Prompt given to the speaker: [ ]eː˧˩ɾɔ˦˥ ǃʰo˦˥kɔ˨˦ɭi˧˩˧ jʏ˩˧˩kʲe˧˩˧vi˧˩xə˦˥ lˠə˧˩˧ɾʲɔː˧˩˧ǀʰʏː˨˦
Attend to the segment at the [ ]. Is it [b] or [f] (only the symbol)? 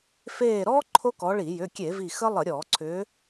f